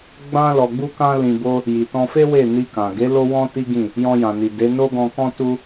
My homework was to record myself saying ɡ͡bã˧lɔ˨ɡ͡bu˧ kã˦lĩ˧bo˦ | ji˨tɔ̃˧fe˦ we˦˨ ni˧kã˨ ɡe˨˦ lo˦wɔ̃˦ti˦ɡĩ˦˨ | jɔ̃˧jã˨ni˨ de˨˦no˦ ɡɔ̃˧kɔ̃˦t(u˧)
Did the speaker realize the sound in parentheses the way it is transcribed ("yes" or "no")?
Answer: no